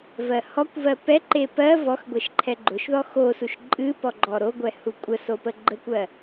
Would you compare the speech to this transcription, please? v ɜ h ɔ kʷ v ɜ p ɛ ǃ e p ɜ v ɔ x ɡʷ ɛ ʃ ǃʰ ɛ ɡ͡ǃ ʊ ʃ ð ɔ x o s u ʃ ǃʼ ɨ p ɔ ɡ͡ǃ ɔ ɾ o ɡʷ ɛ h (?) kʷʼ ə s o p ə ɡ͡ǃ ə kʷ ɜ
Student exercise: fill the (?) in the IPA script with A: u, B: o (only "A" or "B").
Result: A